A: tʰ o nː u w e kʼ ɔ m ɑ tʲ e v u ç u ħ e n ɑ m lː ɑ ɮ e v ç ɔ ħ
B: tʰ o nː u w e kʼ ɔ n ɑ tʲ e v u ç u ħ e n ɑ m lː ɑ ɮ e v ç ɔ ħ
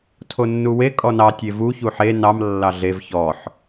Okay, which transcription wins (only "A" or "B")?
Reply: B